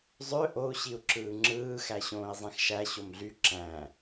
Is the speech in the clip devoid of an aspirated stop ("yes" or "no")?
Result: yes